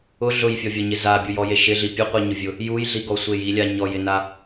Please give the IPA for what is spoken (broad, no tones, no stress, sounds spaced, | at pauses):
ʊ ɮ ʊ j fʲ ɔ vʲ ɔ ɲ ɪ z a bʲ u j ɔ j e ʃ ɪ ɮ i pʲ o qʷ i ɲ ʊ vʲ ʊ | j u j ɮ i ɡ ɔ sʷ e j i lʲ a ɲ ɔ j ɪ n a